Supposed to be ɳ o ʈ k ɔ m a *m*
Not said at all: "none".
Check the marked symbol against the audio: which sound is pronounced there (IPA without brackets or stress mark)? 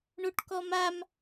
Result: m